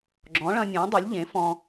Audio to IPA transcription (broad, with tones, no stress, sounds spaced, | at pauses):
ɡ͡ǁ ɔ̃˩˥ ɭ ɐ̃˧ nʲ ɔ̃ː˩˥ dˤ ø˩˥ lʲ ʎ ẽ˩˥ f ɔ̃˧